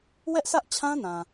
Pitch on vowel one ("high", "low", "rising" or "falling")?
high